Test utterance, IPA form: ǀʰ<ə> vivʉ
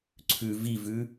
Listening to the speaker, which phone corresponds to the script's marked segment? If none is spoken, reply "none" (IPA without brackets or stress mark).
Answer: ʉ